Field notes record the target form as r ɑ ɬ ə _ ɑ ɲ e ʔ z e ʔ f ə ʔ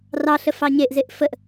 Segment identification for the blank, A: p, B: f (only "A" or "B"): B